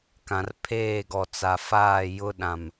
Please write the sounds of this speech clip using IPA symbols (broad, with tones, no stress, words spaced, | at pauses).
kã˨rpʰeː˦˨ɡɔ˨ t͡sa˨faː˦˨ jʊ˦ ɗã˨m